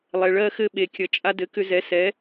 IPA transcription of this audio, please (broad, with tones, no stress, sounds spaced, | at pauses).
lˠ ɛ˩ ɭ ɜ˧ x ɘ˧ ɓ e˩ kʲ ʌ˩ t͡ʃʼ a˧ d ɘ˩˥ k ʏ˧ z ɛ˩˥ s ɛ˩˥